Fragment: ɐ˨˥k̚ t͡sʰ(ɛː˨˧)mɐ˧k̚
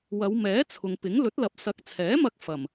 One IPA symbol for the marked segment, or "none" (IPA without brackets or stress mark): ɛː˨˥